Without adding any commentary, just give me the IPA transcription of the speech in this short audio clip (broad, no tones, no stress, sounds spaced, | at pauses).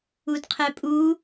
u d qʰ ɛ pʼ u